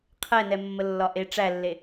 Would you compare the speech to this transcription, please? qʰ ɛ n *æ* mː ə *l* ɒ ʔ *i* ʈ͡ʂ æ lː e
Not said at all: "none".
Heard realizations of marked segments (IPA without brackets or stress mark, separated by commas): ɛ, lː, e